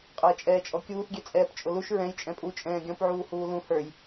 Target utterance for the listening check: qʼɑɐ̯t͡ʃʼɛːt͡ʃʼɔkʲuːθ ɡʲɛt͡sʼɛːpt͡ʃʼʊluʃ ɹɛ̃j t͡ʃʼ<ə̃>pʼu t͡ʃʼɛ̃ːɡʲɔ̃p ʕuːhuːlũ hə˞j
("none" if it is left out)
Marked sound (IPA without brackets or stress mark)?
ɛ̃